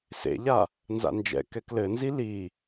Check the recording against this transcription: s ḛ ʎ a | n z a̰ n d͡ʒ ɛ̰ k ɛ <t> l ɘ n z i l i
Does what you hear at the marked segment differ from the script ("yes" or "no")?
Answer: yes